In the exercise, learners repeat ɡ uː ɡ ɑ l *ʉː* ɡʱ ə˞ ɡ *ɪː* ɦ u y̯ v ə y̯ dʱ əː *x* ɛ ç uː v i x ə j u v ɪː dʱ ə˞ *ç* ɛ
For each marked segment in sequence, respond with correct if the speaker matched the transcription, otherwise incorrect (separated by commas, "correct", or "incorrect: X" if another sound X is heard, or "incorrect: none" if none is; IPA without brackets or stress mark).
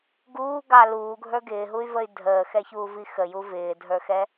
incorrect: uː, correct, correct, incorrect: x